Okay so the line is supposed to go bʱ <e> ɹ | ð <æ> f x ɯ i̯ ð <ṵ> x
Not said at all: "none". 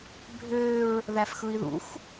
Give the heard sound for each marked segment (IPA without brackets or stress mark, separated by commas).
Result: ø, æ, ṵ